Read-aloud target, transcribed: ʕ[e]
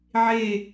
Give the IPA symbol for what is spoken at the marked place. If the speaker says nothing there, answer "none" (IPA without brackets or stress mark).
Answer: e